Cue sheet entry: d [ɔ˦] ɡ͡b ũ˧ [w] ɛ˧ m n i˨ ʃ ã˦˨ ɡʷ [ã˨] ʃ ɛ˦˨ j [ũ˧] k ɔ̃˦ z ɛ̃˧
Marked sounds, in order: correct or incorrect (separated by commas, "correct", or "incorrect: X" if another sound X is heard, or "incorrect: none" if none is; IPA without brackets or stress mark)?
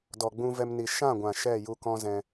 incorrect: ɔ˨, incorrect: v, correct, incorrect: u˧